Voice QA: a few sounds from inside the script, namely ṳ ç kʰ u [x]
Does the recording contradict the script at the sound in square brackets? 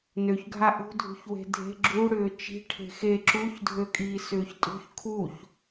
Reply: yes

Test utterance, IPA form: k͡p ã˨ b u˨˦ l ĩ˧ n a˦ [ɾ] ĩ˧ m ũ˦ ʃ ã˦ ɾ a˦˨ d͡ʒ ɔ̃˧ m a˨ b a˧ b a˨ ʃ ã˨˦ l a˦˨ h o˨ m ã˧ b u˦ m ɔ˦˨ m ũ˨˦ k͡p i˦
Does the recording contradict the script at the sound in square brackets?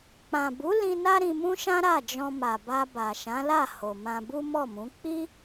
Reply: no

